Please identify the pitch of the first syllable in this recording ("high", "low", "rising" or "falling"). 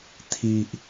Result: low